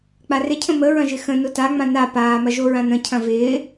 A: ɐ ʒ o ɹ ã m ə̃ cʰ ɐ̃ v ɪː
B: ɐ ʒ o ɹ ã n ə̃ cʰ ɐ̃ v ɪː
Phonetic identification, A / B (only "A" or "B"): B